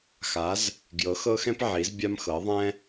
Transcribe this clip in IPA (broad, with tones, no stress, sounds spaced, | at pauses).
x a˩˧ z | ɡ j ɤ˩˧ x ɤ˧ x ɛ̃˧ p ʕ i˩˧ z bʲ a˧ m x ɤ˩˧ ðˤ ɛ̃˧